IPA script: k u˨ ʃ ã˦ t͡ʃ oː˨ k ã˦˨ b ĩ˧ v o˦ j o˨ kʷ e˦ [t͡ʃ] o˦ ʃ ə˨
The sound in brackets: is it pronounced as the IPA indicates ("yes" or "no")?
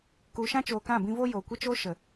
yes